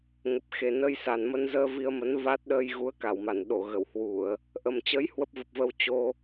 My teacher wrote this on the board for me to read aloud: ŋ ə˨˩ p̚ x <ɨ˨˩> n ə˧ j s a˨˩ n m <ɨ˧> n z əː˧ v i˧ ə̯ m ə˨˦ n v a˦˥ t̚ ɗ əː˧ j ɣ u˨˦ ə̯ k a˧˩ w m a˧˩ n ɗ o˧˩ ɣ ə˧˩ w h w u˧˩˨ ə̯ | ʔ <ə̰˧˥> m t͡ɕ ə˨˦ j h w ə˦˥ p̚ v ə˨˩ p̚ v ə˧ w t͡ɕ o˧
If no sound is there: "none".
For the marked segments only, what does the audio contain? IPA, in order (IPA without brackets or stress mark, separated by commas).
e˨˩, ə˧, ə˨˩